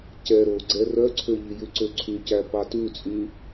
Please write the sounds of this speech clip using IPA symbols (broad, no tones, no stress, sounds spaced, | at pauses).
c ɛ ɾ o ɡ͡ǀ ɛ r œ ǀʰ ø ʎ i j ʉ ǀ ø ǀʰ y c æ p ɑ t ʉ t͡sʼ y